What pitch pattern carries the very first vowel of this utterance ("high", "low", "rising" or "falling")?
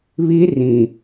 high